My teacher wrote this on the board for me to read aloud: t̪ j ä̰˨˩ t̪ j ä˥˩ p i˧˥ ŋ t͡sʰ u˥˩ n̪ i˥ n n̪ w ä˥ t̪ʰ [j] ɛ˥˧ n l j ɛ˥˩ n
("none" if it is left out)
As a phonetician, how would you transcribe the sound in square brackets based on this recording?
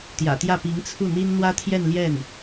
j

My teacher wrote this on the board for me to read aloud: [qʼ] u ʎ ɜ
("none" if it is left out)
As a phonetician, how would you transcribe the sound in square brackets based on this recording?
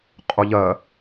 qʼ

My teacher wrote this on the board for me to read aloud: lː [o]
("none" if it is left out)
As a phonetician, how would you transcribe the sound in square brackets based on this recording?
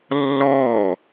ɔ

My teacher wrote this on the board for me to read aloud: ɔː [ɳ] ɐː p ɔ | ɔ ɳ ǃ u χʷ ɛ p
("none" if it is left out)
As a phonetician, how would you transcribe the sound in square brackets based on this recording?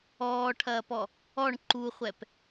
ʈʰ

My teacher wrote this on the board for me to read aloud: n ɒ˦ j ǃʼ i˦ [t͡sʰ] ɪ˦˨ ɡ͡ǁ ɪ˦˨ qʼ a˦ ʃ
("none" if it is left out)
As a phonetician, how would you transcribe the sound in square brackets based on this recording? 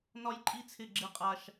t͡sʰ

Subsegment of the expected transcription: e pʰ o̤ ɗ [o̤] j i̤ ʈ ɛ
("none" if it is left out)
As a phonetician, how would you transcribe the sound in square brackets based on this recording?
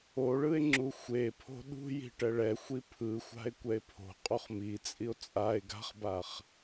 ṳ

